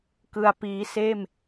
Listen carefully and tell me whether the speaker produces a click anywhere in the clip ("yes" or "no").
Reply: no